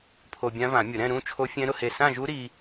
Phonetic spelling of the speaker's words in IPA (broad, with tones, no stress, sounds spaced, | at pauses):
pʰ o˧ bʲ ã˦˥ v ã˨˩˦ mʲ ʊ˨˩˦ ɾ ɛ̃˥˧ ɾ ũ˥˧ t͡ʃʰ o˦˥ fʲ ɛ̃˦˥ ɾ ʊ˧ h e˧˩ s ã˥˧ ʒ u˦˥ ɾ i˧